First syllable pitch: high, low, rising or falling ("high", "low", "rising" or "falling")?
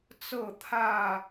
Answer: falling